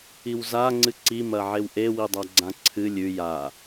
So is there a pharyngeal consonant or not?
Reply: yes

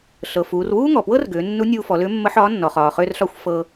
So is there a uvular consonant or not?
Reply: yes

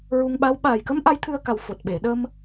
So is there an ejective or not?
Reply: no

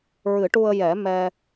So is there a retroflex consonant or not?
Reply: yes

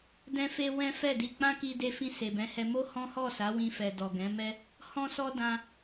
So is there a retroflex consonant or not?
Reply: no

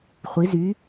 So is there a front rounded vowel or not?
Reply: yes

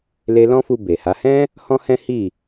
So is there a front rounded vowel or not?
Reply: no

